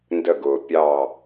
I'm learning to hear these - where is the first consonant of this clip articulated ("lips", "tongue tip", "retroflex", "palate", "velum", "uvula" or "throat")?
tongue tip